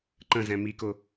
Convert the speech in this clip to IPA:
ǃ ə̃ z ɛ̃ m i k ʊ

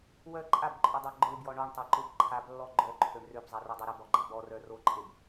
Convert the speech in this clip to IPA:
w œ ǃʼ a b ǃʼ œ dˤ a ɡ͡ǃ ø b j ɔ ɳ ɔ ɳ tˤ a ǃ ø b ǃʰ a b lː ɔ ɡ͡ǃ œ ǃʰ ø ɳ r ø b zˤ ɛ r œ dˤ o ɾ ə b ɔ ɡ͡ǃ a b ɔ r œ r o ǃʼ e b

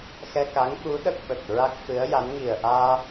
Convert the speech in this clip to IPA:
x ɛ˧ k a˧˥ ŋ ɓ u˧˥ ɗ ə˦˥ k̚ ɓ ə˨˩ k̚ ɹ a˦˥ k̚ f ɨ˧˥ ə̯ j a˧˥ n ŋ i˨˩ ə̯ ʔ aː˧

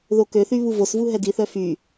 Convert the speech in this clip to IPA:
ð o k ø θ y β u v o s v u ɦ ɛ d i θ œ f y

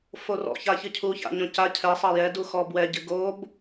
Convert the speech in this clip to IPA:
f o r ɔ̰ ç a ç ɨ cʰ u ç a̰ ɲ õ c a cʰ ɛ sˤ ɐ j ɛ d u x ɔ b w ɛ ɟ ɨ ɡ o b

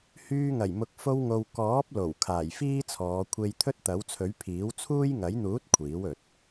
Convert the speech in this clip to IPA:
h yː˧ ŋ ɐ˨˩ j m ʊ˨ k̚ f o˧ w ŋ o˨ w k ɔː˨˥ p̚ l o˨˩ w kʰ aː˨˩ j f iː˥ t͡sʰ ɔː˨˧ kʷʰ e˧ j t̪ʰ ɵ˥ t̚ t̪ ɐ˨˥ w t͡sʰ ɵ˨˥ ɥ pʰ iː˨˥ w t͡sʰ uː˥ j ŋ ɐ˨˥ j n̪ uː˨˥ t̚ kʷʰ iː˨˥ w ɵ˨ t̚

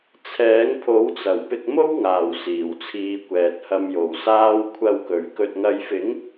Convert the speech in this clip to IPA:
t͡sʰ ɛː˨˥ ŋ pʰ o˨˥ w t͡s ɐ˨˩ w p ɪ˧ k̚ m o˥ w ŋ aː˨˩ w s iː˨˩ w t͡sʰ iː˨˧ kʷ ɛː˨ t̚ h ɐ˧ m j o˨˩ w s aː˧ w kʷʰ ɐ˨ w k ɵ˨˩ ɥ k ɵ˨ t̚ ŋ ɐ˨˧ j f ɪ˨˥ ŋ

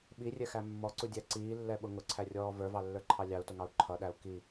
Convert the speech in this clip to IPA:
ɓ i rʲ ɛ x æ mː ɔ ǀ u dʲ æ ǀ iː lː ɛ ɓ ʊ ŋ ʊ ǀʰ æ rʲ ɔː v ə˞ v ɑ lː ə˞ ǃʰ ɑ lʲ ɑ u̯ t ʊ ŋ ɑ u̯ ǃʰ ʌ ɗ æ u̯ k i

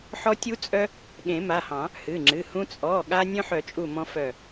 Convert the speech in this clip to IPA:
ħ ɔ˦ tʲ u˦ t͡sʼ œ˦ | ɠ ẽ˨˩˦ m a˩˧˩ h ɑ̃˨˩˦ | h ɨ˩˧˩ ŋ͡ǁ ɨ˩˧˩ h ũ˦ t͡sʼ ɔ˩˧˩ ɠ a˦ nʲ œ̃˦ ħ œ˨˩˦ t͡ʃʼ u˧˩ m ɔ̃˦ f œ˧˩

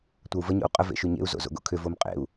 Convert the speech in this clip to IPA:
tʷ ɐ u̯ v ə ɲ o̰ u̯ qʼ ə v ḛ ʃ y ɲ ḛ u̯ z o̰ z o̰ ɡ o̰ kʰ ʏ v o m qʼ ḛ u̯

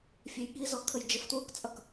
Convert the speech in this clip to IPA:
fʲ ɛ j ɠ i z ɔ kʰ ə j d͡ʒ ə f t w u k t͡sʼ ʌ k

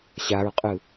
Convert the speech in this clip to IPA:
ɕ a ɹ qʼ ɯ

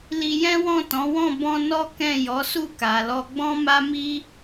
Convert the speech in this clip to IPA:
l i˧ j ɛ̃˦ w ɔ̃˦˨ t ɔ̃˨˦ w ɔ̃˦˨ b ɔ̃˧ n ɔ˦ k ɛ̃˦˨ j ɔ˨˦ s u˦˨ k a˨ l ɔ˧ ɡ͡b ɔ̃˦ m a˦ m i˦

